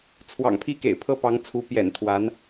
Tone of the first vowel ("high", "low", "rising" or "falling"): low